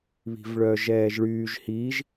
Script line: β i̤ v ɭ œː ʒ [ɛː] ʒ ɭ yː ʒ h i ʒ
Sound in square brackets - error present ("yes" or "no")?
no